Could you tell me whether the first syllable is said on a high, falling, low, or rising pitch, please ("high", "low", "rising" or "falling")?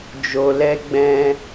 low